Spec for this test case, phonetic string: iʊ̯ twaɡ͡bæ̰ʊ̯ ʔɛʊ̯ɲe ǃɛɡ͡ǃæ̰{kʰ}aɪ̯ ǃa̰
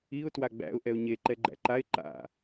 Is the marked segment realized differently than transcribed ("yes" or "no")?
yes